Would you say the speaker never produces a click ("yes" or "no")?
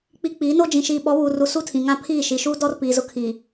yes